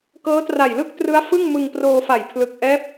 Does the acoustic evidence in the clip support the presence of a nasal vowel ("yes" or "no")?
no